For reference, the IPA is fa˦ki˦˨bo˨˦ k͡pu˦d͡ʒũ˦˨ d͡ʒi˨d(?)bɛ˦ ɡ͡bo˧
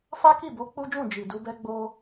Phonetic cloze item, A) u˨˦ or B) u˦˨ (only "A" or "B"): A